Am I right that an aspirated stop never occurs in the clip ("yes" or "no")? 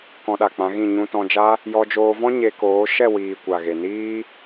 yes